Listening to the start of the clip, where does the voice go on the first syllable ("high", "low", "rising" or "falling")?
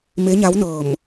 rising